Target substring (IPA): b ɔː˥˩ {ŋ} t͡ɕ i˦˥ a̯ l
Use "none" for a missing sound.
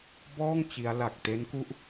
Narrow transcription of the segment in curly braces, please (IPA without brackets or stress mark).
ŋ